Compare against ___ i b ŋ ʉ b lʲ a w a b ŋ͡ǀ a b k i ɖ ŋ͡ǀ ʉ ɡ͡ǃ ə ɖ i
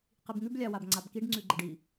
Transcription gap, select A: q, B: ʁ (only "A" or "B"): A